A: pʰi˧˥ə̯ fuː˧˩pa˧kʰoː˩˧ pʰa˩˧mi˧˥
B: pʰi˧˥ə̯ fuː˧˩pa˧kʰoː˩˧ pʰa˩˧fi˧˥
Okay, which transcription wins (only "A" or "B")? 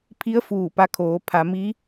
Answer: A